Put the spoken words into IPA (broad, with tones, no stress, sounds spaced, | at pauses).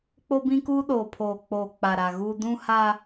k͡p o˦ b ĩ˦ k uː˦ ɗ oː˨ pʰ oː˨ k͡p oː˨ k͡p a˨ ɾ a˨ ɣ uː˦ d ũ˦ h a˦